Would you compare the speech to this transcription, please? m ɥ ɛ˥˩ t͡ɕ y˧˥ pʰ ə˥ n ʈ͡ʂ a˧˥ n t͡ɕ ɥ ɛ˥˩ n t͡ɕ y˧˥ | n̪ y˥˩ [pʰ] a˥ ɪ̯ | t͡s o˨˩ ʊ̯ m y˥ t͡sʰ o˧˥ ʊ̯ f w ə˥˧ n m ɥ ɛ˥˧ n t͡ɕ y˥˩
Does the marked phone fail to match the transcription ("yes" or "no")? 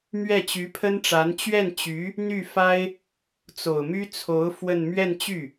yes